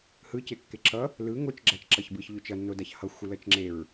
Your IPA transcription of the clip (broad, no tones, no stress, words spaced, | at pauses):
hɯcekːe ǁʌ | lɯ ŋot͡ʃ ɡ͡ǁat͡ʃǁʌçbɯç ʎot͡ʃʌnːodaç hʌxʷɯlʌt͡ʃ ŋ͡ǁeɹ